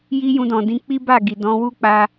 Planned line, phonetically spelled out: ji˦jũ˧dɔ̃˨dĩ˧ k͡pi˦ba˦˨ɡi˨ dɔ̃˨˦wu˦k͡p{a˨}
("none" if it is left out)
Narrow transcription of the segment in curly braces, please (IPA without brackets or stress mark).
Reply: a˧